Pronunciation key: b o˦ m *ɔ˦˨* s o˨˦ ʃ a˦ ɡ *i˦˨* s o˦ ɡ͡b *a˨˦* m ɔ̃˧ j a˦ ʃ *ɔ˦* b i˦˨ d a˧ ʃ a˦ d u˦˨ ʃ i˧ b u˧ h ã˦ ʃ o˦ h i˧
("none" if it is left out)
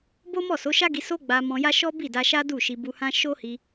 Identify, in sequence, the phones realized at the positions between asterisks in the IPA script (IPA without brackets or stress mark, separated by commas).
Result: ɔ˦˨, i˧, a˧, ɔ˦